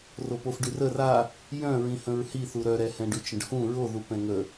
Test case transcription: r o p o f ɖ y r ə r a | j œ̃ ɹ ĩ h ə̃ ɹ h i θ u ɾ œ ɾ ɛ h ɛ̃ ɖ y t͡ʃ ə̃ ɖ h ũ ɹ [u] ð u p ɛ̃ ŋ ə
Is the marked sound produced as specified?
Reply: no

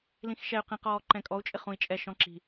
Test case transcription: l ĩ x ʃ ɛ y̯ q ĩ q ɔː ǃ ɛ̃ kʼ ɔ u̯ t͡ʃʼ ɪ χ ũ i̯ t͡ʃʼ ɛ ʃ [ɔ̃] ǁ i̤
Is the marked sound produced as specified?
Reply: yes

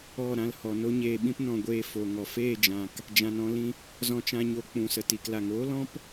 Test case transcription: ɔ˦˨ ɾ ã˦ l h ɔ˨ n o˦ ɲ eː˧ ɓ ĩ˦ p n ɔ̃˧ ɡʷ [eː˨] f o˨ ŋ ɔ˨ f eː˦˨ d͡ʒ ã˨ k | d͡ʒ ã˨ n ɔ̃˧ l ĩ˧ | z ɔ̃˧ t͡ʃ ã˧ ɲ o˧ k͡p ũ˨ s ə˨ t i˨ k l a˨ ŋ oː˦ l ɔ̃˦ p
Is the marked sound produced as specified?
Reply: no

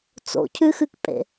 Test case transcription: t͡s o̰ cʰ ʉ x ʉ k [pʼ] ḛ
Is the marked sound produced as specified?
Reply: yes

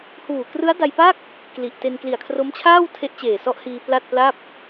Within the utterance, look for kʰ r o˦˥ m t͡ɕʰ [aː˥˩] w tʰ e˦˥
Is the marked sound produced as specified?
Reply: yes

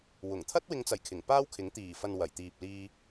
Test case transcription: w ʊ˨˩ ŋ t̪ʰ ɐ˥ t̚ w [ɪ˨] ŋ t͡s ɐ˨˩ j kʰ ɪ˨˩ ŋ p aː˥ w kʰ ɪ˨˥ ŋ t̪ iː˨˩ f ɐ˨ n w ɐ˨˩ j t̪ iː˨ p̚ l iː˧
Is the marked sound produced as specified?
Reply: no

